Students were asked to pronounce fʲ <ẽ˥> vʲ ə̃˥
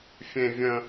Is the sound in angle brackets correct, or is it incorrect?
correct